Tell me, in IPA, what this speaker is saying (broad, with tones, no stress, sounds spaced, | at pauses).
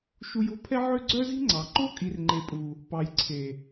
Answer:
ʃ u˧ j o̤˦ pʰ ɛ˦ ʕ ø˦ ɡ͡ǀ œ˦ z i̤˦ ŋ͡ǀ ɑ˨ ǃ o˦ kʼ i˨ r ŋ͡ǃ e˨ pʼ u˨ | p ɑ˨ j ǀʰ e˨